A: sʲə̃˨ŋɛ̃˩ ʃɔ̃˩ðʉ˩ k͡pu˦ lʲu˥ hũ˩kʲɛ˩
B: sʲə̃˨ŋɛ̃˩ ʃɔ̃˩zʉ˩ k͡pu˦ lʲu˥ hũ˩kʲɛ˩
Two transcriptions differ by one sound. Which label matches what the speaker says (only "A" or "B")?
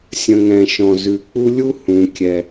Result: B